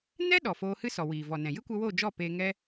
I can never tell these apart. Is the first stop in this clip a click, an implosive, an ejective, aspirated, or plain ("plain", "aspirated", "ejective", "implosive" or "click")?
implosive